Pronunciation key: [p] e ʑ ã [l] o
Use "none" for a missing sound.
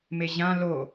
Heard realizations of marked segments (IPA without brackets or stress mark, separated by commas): m, l